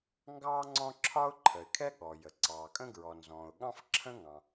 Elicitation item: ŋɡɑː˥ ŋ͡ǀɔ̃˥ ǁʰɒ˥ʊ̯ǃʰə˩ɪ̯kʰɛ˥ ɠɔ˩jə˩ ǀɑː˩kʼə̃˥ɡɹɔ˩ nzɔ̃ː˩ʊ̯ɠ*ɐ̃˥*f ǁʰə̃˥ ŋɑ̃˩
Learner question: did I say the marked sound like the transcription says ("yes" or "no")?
no